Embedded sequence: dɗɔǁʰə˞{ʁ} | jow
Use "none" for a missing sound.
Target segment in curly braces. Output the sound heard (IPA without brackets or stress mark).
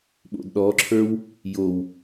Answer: w